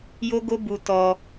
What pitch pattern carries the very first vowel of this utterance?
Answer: high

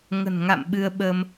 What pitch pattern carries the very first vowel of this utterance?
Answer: low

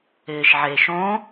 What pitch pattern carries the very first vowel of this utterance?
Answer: low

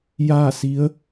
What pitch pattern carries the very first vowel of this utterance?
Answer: falling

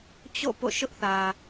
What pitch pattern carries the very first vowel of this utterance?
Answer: falling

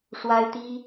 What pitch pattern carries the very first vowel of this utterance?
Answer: high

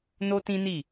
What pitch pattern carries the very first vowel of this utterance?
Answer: high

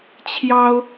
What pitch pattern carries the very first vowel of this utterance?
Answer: high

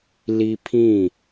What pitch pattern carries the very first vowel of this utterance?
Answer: high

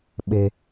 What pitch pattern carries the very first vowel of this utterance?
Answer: low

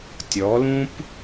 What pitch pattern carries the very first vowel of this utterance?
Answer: rising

